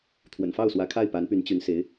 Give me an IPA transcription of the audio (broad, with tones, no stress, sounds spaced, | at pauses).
t̪ʰ w ə̰˨˩ n f ɑ˥˩ ʊ̯ s w ä˧˥ kʰ a˥˩ ɪ̯ p a˧˥ n p y˧˥ n t͡ɕ y˧˥ n s e˧˥ ɪ̯